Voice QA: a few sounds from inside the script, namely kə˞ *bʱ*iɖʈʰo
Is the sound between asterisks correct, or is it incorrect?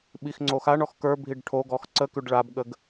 correct